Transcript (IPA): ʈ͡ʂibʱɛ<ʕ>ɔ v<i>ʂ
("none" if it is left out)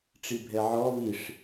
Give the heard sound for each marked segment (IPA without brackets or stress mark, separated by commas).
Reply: ʕ, i